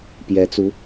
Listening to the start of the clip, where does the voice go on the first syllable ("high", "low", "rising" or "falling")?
rising